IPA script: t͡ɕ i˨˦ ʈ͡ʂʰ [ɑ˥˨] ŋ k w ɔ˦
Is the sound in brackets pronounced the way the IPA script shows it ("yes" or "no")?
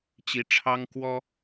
no